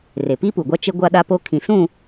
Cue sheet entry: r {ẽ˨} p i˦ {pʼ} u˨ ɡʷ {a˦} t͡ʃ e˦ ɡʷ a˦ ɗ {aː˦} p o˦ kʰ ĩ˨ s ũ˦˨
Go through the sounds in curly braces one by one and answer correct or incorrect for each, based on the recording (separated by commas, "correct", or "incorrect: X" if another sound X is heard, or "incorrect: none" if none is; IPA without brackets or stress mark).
incorrect: e˨, incorrect: p, correct, incorrect: a˦